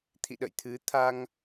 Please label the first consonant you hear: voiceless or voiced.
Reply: voiceless